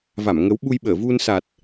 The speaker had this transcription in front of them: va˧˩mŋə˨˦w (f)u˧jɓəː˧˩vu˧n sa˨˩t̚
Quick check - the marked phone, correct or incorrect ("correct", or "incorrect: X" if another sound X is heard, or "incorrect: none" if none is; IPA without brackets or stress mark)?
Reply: incorrect: ɓ